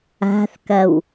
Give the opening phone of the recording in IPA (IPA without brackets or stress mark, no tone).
a̤